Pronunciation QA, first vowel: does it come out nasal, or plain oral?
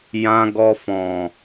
nasal